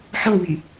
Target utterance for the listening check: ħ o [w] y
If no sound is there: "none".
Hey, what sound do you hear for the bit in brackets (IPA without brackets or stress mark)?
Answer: w